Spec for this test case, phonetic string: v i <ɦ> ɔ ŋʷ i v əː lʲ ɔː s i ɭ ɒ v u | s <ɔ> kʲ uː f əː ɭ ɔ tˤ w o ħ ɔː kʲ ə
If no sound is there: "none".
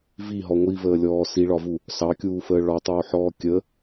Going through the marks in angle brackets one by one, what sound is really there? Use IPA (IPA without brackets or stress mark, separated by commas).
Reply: ɦ, ɑ